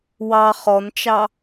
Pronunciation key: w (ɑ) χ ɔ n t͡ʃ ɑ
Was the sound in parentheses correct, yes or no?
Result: yes